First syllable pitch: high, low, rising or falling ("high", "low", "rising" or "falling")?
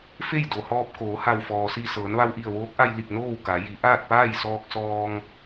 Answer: falling